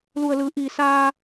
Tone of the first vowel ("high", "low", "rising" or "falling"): low